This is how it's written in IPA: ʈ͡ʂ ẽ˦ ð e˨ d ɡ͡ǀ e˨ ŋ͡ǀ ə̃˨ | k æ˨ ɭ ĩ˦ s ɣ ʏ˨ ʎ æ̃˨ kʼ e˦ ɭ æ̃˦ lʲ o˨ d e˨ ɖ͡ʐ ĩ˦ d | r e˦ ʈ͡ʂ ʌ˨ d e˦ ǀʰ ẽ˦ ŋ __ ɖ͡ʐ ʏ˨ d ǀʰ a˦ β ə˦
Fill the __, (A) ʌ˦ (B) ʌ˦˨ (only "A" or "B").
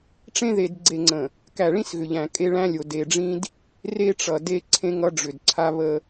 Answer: A